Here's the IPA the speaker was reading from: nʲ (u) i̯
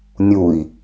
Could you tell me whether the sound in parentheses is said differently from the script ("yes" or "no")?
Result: no